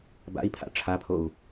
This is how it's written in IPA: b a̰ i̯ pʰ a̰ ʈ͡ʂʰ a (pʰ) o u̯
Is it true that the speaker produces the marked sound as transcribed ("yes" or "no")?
yes